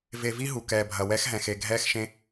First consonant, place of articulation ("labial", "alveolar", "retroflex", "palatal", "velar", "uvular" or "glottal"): labial